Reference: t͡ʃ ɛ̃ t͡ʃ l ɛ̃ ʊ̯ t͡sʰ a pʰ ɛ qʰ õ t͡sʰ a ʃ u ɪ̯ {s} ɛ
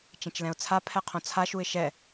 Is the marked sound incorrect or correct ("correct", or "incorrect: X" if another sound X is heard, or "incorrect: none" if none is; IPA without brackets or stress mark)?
incorrect: ʃ